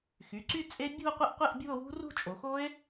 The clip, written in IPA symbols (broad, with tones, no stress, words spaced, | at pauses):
xy˩˧˩ǀy˥˧t͡sʼe˦˥ bʲṳ˥˧o̯qʷə˥˧ʔqʷe˥˧ʔ bʲṳ˥˧o̯wṳ˦˥rṳ˥˧ t͡ʃʼo˩˧xo˦˥e̯